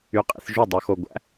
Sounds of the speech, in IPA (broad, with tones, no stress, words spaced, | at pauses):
y˧qʼḭ˧θʒu˥˩ dˤo˧xo˧ ɡʷæ̰˩˥